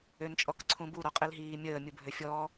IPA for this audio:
ø n t͡ʃʼ ɔ k ǀʰ ũ b u ɾ ɔ qʼ i l ɦ iː mʲ əː mʲ u bʱ ø fʲ ɔː

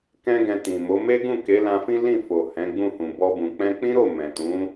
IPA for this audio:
k ɛ̃˦ ɡ ɛ̃˧ t ĩ˨ m o˨˦ m e˦ ɡ ũ˦˨ k e˨˦ l ã˧ f ĩ˦ l ĩ˦˨ f o˨ h ɛ̃˨˦ ɡ͡b ũ˦˨ h ũ˨ b ɔ˧ b ũ˨ k͡p ɛ̃˧ k͡p ĩ˦ ɾ o˦˨ m ɛ̃˨ t ũ˨˦

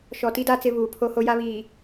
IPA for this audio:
ʃ ɔ˨ t i˦ d a˦ t͡s ɪ˦ β uː˨ pʰ o˦ h o˦ j a˦ β iː˨

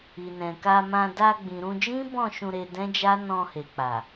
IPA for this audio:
i˨ n ɛ̃˨ k a˧ m ã˧ d a˧ ɡ͡b ĩ˨ ɾ ũ˧ d͡ʒ ĩ˦ b ɔ̃˦˨ ʃ ũ˧ ɾ e˧ d ɛ̃˦ d͡ʒ a˦ n ɔ̃˧ h e˨ k͡p a˨

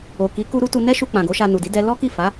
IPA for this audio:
o˨ k i˨˦ k u˦ ɾ u˦ t u˧ n ɛ˦ ʃ u˧ k͡p ã˨ ɡ o˨˦ ʃ a˧ n u˨ d i˨˦ d ɛ˦ l ɔ˦ k i˦˨ f a˨˦

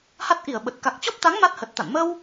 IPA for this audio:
h a˦˥ t̚ ʔ i˧˩ ə̯ ɓ ə˨˩ t̚ k a˨˩ k̚ t͡ɕ ɔ˦˥ p̚ t̪ a˨˦ ŋ m a˦˥ t̚ h ə˨˩ t̚ t̪ a̰˧˨ n m ə˧ w

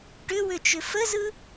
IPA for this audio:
ʈ ʏ w ʏ t͡ʃ ʏ f ə z ɯ

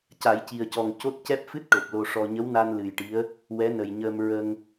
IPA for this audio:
c a˨˩˦ j c i˨˩ ə̯ c ɔ˨˩ ŋ c o˦˥ t̚ c ɛ˦˥ p̚ f ɨ˦˥ t̚ ʈ o˨˩ p̚ l o˧ ʂ ɔ˧ ɲ ə˧˥ w n a˧ n l ɨ˨˩ j ʈ i˧˥ ə̯ | w ɛ˧˥ n ə˨˩ j ɲ əː˧ m ɹ ə˧ ŋ

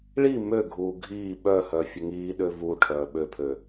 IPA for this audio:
ɭ i m ø ɡʱ uː ɡʱ iː ɓ œ h œ fʲ ə ŋ iː ɗ ø v u ʈʰ œː ɓ ø pʰ ø

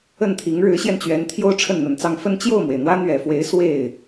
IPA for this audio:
ə˥˩ n t̪ʰ i˧˥ ŋ ɻ ɻ̩˧˥ ɕ j ɛ˧ n t͡ɕ ɥ ɛ˧˥ n t̪ʰ j o˥ ʊ̯ ʈ͡ʂʰ ə˥˩ n n̪ ə˨˩ n t͡s ɑ˥˧ ŋ f ə˥˧ n t͡ɕ j o˥˩ ʊ̯ m w e˩ ɪ̯ n̪ w ä˥ n̪ ɥ ɛ˨˩ f w e˧˥ ɪ̯ s w e˥˩ ɪ̯

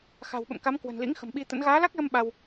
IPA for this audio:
x a̤˨˩ w ɓ ə̰˧˨ m k a˨˦ m k w ə̤˨˩ n l ḭ˧˥ ŋ x ə̤˨˩ m ɓ i˧ t̪ ə̰˧˥ n ɣ aː˨˦ l a˦˥ k̚ l ə˧ m ɓ a˧ w

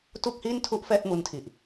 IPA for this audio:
t u˥˩ k̚ h i˥˩ n tʰ u˥˩ ʔ f ɛː˥˩ t̚ m u˧ n tʰ i˨˩ ʔ

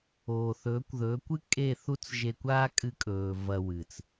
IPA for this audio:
oː˨ θ ɵː˨˦ kʷ ð ɵː˨˦ kʷ ɨ˦ kʼ e˦˨ θ u˦ t͡s ʒ e˧ kʷ aː˦ kʼ ɨ˧ kʼ ɵː˨ v ɐ˧ w ɨ˨ t͡s

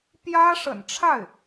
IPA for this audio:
p j ä˥ ʂ ə̰˨˩ n ʈ͡ʂʰ a˥˩ ɪ̯

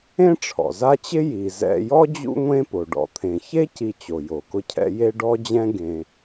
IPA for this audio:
ẽ˥ ʈ͡ʂʰ ɔ̰˩ z a˦ t͡ɕ ɪ˥ j i˩ z ɛ̰˨ j ɔ˥ d͡ʑ ṵ˦ ŋʷ ẽ˦ p o˩ ɖ ɔ̰˩ t̪ʰ ẽ˩ ç e˦ c i˨ t͡ɕ o˩ j o˩ k ʊ˦ cʰ ɛ̰˦ j e˦ ɖ ɔ˥ d͡ʑ ɛ̃˥ ɡ ẽ˨

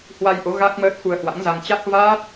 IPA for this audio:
h w a˧ j ʔ o˨˦ ɣ a˦˥ k̚ m əː˦˥ t̚ x u˧ ə̯ h w a̰˧˥ ŋ z a˧ ŋ t͡ɕ a˦˥ k̚ v aː˦˥ t̚

